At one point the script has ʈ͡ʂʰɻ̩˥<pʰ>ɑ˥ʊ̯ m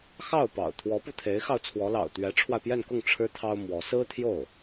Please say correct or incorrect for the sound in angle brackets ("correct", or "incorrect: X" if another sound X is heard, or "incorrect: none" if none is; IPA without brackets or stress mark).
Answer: incorrect: t̪ʰ